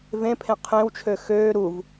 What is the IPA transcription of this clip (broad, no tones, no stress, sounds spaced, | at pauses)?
v ẽ pʰ ẽ qʰ ẽ w t͡ʃʰ ø x øː ɾ u v